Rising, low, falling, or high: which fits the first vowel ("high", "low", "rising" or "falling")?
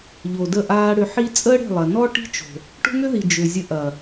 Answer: low